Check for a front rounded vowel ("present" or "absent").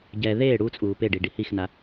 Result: absent